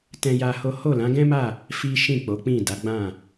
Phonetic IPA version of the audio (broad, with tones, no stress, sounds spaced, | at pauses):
t ɛ̃˦ j a˦ h o˦ h o˦˨ l ã˨˦ ɡ ɛ̃˦ m a˦˨ | f i˦ ʃ ĩ˦˨ k͡p o˨˦ k͡p ĩ˦˨ d a˨˦ ɡ͡b ã˦˨